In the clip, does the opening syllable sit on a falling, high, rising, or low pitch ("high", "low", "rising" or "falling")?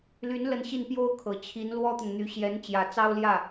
rising